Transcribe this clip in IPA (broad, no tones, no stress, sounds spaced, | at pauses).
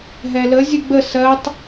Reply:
ɦ ɛ l ə zʲ ɨ ɡ͡b ə s ɜ tˤ